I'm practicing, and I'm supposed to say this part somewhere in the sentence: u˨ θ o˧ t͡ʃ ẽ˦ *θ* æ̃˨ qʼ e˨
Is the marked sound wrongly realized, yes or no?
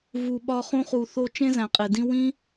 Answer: yes